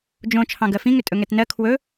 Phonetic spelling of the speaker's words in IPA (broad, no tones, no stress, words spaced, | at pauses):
d͡ʒõ t͡ʃʰɑ̃ɡɜfĩŋʏ tʼɵŋɛtnɜ kʰwɵ